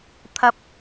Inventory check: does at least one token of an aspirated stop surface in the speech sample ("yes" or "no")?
yes